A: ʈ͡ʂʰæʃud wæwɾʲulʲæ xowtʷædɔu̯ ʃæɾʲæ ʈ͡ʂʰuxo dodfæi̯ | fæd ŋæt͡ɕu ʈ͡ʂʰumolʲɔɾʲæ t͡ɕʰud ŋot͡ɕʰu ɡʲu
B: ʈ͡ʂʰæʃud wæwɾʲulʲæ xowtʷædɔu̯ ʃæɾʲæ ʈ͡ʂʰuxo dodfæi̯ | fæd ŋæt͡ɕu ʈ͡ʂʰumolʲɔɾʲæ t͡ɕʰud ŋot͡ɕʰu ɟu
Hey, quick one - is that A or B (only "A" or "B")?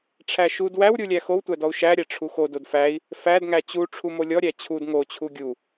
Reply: A